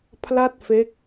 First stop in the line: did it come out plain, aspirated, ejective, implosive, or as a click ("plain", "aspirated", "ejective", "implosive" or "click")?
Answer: aspirated